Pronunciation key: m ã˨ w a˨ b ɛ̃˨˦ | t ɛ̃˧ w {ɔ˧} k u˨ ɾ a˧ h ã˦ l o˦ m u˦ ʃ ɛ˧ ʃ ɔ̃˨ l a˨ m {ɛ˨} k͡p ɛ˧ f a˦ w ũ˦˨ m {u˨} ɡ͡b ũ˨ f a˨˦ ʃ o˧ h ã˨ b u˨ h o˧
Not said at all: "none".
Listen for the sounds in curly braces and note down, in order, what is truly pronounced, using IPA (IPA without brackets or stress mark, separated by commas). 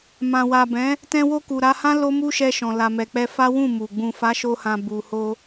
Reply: o˧, ɛ˨, u˨